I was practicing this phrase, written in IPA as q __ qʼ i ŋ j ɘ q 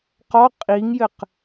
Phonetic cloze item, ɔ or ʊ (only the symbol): ɔ